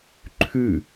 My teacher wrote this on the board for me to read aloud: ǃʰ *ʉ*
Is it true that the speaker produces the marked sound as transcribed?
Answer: yes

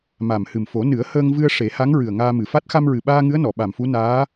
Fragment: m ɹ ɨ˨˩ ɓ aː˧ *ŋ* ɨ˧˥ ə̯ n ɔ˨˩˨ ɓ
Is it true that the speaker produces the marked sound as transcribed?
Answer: yes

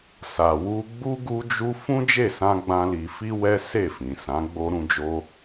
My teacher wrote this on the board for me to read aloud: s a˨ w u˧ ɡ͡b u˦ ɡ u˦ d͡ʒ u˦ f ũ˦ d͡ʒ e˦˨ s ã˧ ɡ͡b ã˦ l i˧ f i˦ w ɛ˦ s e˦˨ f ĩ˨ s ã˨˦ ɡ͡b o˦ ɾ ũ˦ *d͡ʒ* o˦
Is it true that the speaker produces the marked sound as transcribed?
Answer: yes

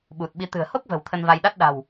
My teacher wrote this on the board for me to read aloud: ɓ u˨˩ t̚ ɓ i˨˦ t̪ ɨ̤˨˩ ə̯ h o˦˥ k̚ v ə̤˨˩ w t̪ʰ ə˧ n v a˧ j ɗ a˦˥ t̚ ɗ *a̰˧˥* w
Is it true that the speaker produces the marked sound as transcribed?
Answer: no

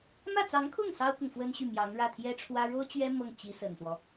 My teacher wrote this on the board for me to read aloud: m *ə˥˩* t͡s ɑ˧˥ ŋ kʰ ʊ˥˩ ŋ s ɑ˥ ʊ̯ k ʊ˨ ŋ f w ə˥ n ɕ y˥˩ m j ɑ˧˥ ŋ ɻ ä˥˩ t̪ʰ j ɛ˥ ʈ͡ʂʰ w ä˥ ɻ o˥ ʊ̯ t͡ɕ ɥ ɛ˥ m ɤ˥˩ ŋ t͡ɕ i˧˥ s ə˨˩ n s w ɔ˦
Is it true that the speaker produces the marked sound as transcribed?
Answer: no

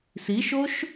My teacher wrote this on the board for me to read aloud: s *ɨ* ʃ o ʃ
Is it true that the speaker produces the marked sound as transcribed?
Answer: no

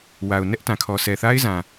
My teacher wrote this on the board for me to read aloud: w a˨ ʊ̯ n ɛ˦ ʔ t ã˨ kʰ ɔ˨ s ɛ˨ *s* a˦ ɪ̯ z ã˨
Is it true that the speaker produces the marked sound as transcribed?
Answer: no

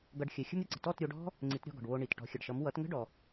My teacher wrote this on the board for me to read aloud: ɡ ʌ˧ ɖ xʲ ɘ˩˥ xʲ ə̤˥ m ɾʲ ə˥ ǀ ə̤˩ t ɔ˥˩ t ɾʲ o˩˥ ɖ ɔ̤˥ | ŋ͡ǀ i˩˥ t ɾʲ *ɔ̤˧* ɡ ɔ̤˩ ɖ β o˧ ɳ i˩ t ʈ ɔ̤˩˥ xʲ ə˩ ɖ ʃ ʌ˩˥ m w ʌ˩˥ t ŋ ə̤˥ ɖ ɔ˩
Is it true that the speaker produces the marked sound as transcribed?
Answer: no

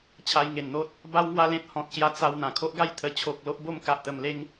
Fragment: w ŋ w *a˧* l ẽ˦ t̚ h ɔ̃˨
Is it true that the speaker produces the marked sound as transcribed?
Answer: no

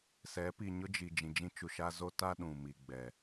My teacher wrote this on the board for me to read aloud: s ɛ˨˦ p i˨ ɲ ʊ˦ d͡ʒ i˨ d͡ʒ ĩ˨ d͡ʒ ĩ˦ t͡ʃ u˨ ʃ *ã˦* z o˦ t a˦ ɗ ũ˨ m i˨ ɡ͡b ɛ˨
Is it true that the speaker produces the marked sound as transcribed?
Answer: no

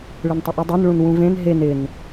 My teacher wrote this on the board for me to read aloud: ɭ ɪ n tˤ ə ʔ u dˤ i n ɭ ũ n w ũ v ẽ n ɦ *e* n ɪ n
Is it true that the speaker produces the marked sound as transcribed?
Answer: yes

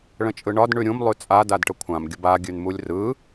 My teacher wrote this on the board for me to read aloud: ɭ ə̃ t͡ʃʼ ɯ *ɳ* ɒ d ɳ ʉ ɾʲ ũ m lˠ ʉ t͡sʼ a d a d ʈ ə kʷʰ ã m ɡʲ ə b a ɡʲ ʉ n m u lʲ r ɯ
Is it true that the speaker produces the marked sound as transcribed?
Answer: yes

